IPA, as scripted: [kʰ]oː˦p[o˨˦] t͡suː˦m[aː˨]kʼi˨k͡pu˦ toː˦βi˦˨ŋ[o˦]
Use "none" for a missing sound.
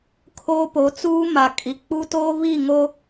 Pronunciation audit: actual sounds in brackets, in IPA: kʰ, o˨˦, a˨, o˦

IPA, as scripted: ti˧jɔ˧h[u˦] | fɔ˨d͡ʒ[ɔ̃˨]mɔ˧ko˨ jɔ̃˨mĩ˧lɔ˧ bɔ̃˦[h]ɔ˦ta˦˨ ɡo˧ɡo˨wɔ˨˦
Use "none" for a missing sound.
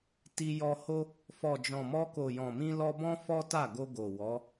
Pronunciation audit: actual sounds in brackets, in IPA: o˦, ɔ̃˨, f

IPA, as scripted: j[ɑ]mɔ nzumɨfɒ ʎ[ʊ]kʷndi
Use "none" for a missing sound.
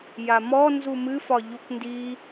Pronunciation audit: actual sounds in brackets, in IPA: a, u

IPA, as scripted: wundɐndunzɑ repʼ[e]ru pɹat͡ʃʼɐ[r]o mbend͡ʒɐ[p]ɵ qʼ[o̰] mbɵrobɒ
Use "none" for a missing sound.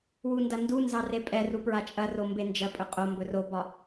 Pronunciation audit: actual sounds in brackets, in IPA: ɛ, r, pʼ, o

